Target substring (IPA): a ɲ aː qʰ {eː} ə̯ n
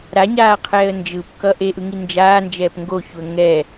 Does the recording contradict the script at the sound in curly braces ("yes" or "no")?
yes